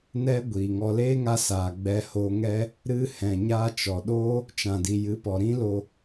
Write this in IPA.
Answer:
n ɛ˦ ɡʷ iː˨ ŋ ɔ˧ l eː˦ ŋ a˧ s aː˨ ɡ͡b ɛ˧ h o˧ ŋ ɛ˦ | ɾ ɨ˧ h ɛ̃˨ ɲ a˦ t͡ʃ ɔ˨ ɗ oː˦ | t͡ʃ ã˨ d i˨ j ɨ˨˦ p ɔ˨ ɾ ĩ˦ l o˧

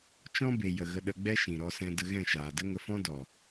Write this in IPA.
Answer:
t͡ʃ ɔ̃˦ b e˨ j ə˨ ɣ ə˧ ɗ ə˧ ɡ͡b ɛ˦ ʃ ĩ˨ ɾ ɔ˧ s ɛ̃˧ d ə˧ ɣ ɛ̃˦˨ ʃ aː˨ d ə˦ ŋ ə˧ f ɔ̃˦ d ɔ˨

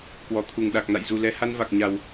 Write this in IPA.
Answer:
k w ɔ˧˩ t̪ʰ u˧˩ ŋ ɗ a˨˩ k̚ n a̰˧˨ j z u˨˩ l ɛ˨˦ h a˧ n v a˨˩ k̚ ɲ a˨˩ w

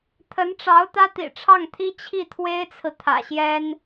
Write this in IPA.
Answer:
t̪ʰ ə˧˥ n ʈ͡ʂ ɑ˧˥ ʊ̯ t̪ ä˥ t̪ ḭ˨˩ ʈ͡ʂʰ ɑ˥˩ ŋ t̪ʰ i˥ t͡ɕʰ i˥˩ t̪ʰ w e˥ ɪ̯ t͡sʰ ɹ̩˨ t̪ʰ ä̰˨˩ ɕ j ɛ˥ n

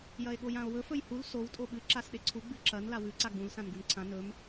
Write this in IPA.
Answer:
j ɐ e̯ ɠ o j ã o̯ w ɵ f ɵ j h u l s o w tʼ o ɓ ɨ ǁ a s ɗ e ǀʰ u ɡ͡b ɨ ǁ ɐ n l a w ʉ ǀ a ɡ͡b ũ l s ã n ɡ u n ǀʰ ã n ɵ m

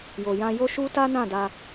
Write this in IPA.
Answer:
j o˨ j ã˧ j o˦ ʃ u˦ t a˦ n ã˦˨ d a˧

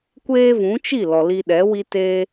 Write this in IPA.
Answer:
kʷ eː˦ v ũ˨˦ t͡ʃ i˦˨ l ɔ˨ l i˧ ɗ ɛ˨˦ w i˧ t eː˧

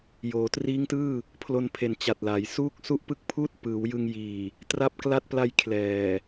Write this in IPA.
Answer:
j oː˩˦ t r iː˦˥ ŋ t ɯː˥˩ | pʰ l o˧ n pʰ e˩˦ n t͡ɕ a˨˩ t̚ l a˩˦ j s uː˥˩ k̚ s u˥˩ ʔ p ɯ˥˩ k̚ pʰ uː˥˩ t̚ p ɯː˩˦ w j ɯ˧ ŋ j iː˨˩ | t r a˦˥ p̚ k l a˦˥ t̚ p l a˧ j kʰ l ɛː˨˩

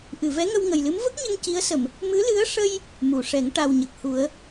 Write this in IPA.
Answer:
ʔ ɨ˨˩˨ v ɛ˧˥ ŋ ə˧ w ŋ ə˨˩ j l ɨ˧˥ m v ə˦˥ k̚ ɲ ə˧ ŋ c i˧˥ ə̯ s ə˨˩˨ m | m ɨ˧˥ l ɨ˧˥ ə̯ ʂ ə˧ j | m u˨˩˨ ʂ ɛ˨˩˦ ŋ ʈ a˨˩ w ɲ ə˨˩ k̚ h u˨˩˦ ə̯

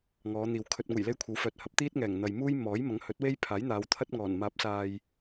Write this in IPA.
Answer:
ŋ ɔː˨˧ n̪ iː˨ w kʰ ɵ˨ t̚ ŋ uː˨˩ j l e˧ j kʷʰ ɐ˨˧ w f œː˨ t̚ h ɐ˨˥ p̚ t̪ iː˥ t̚ ŋ ɛː˨˩ ŋ n̪ ɐ˨ j m uː˥ j m ɔː˨˥ j m ɐ˨˥ ŋ h ɵ˨˥ t̚ w e˥ j pʰ aː˨˥ j n̪ aː˨˧ w t̪ʰ ɐ˥ t̚ ŋ ɔː˨˩ n m aː˨˥ p̚ s aː˨ j

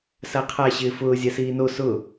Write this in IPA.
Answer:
s a qʰ a ɕ ɪː f ʊː zʲ a s iː n o s ʊ

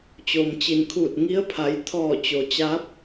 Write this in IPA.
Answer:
t͡ɕ oː˩ m t͡ɕ i˩ n kʰ uː˧˩ t̚ ŋ i˧˥ ə̯ pʰ a˩˧ j t̪ʰ ɔː˧˩ t͡ɕ o˩ t͡ɕ a˧˥ p̚

